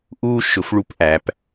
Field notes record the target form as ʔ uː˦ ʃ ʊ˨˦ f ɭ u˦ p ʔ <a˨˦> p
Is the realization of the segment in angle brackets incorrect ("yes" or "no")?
yes